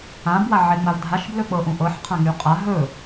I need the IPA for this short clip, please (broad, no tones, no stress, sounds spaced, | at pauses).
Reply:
ã b w a ʕ e ŋ͡m a v dʱ a ʃ b l ɵ k͡p ɤ ʔ ũ ʔ ɤ ħ qʰ ã ŋ y qʼ a ɦ ɵ